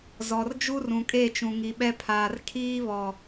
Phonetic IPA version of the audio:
z ɔ˨ r d͡ʒ u˦ r ũ˨ kʼ e˦˨ t͡ʃ ũ˨ ŋ i˨ ɓ ɛ˦ pʰ aː˨ r kʰ iː˦ β ɔ˨

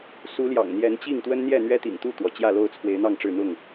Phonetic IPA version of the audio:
s u˨˦ l j ɑ̰˨˩ ŋ n̪ j ɛ˨˦ n t͡ɕ i˥˨ ŋ t̪ w ə˦ n n̪ j ɛ˥˨ n̪ ɥ ɛ˦ t̪ ḭ˨˩ ŋ t̪ u˥˨ t̪ w ɔ˩ t͡ɕ j ä˥˨ l o˥˨ ʊ̯ t͡sʰ w e˨˦ ɪ̯ n̪ ɑ˥˨ ŋ ʈ͡ʂ ɻ̩˥˨ n̪ ʊ˥˨ ŋ

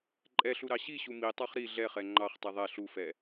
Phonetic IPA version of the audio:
ǃʼ ɛ ɬ u ɾ ɑ ɕ i ɕ u m i tˤ ɑ χ ɾ i ɮ ɛ χ ɛ ŋ͡ǃ ɑ χ tˤ i ðˤ ɛ ɬ u f ɛ

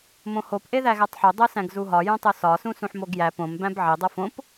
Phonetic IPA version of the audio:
m õ h o p ʔ e ð æ ɣ æ tˤ ħ o dˤ o s æ̃ ɡ z u ɦ ɒ j õ tˤ o s ɒ s ũ s ũ ħ m o ɡ j æ p õ m b æ̃ b ʕ i dˤ o f õ p

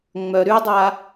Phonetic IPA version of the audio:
ŋ͡m œ ɾ y dˤ a

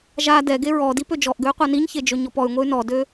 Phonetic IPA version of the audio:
ʒ a d ɛ ɡ e ɹ ɔ d i p ø d͡ʒ ɔ ʔ ɡ ø y̯ qʷ a n i ɲ ç e d͡ʒ ø ɲ ɔ p ɔ y̯ ŋʷ e y̯ n ɔ d ø

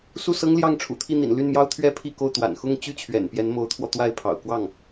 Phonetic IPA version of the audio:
s u˥˩ s ɤ˥ ŋ l j ɑ˥˩ ŋ ʈ͡ʂʰ ṵ˨˩ t̪ʰ i˥˩ n̪ ḭ˨˩ n l y˥˩ n m j ɑ˥ ʊ̯ t̪ʰ ɥ ɛ˥ pʰ i˥˧ k o˥˩ ʊ̯ t̪ w a̰˨˩ n x ʊ˥˧ ŋ t͡ɕ y˥˩ t͡ɕʰ ɥ ɛ̰˨˩ n p j ɛ˧˥ n m o˧˥ ʊ̯ t̪ʰ w ɔ˧ t̪ w a˥˩ ɪ̯ pʰ ɑ̰˨˩ ʊ̯ k w ɑ˥˩ ŋ

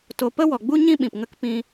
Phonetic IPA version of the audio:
t o˧ p ə˦ w ɔ˨ ɡ͡b u˦ ɲ ĩ˦ ɓ ĩ˨ p ŋ ə˦ k p ĩ˦

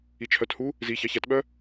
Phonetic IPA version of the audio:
i t͡ʃʰ œ t h u | z i ç ɑ ç æ t ɓ œ

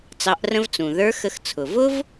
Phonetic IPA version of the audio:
t͡s ɑ˩˧ ʔ r ə̃˧ v t͡s ũ˩ ð ə˞˧˥ x ə˧ x t͡sʰ ʊ˩ v ʊ˥ v

